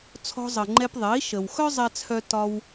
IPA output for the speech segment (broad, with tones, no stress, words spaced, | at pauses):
t͡sʰɔ̤˧zˤə˩ŋ͡ǃɛ˧pðˤe˩˥i̯ ʃə˩wxœ˥ zˤɛ˧t͡sʰœ˧ tɒ˧w